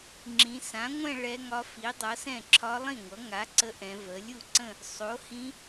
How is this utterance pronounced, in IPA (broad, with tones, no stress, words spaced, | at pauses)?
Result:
ŋ͡ǁĩ˩˧sã˩˥ŋʷɛ̃˥˧ ɭɛ˧˥ŋɒ˧˥ fi˩˥dˤʌ˩˥sɛ̃˥˩ ǁʰɒ˧˥lˠĩ˥˩ŋʷʌ˩˥ ŋa˩˥ ǀə˧˥ʔɛ̃˩˧ və˩˧lʲu˥˩ǀə̃˥˧ | sˤo˩˥hĩ˧˥